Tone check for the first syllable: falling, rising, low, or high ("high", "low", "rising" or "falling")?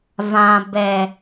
low